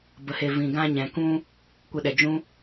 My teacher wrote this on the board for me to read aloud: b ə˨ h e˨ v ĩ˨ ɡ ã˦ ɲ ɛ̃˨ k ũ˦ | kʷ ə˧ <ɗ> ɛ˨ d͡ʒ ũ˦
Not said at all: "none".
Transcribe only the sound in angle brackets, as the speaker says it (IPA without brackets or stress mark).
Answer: ɗ